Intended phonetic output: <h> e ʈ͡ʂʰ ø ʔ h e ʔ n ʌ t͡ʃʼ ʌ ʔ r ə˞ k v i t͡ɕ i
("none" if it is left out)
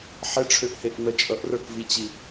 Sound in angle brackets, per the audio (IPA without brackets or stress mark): ħ